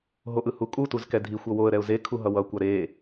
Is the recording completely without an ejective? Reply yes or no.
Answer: no